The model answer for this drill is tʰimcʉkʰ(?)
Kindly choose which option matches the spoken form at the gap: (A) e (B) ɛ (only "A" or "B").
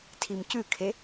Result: A